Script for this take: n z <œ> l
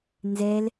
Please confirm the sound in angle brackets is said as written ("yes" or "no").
no